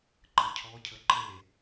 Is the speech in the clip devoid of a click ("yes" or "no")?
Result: no